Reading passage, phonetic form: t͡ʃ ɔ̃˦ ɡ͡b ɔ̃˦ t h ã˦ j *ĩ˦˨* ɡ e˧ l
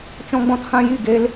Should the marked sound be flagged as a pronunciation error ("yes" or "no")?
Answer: yes